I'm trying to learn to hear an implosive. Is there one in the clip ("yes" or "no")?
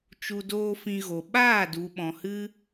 yes